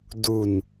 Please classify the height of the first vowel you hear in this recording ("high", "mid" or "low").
high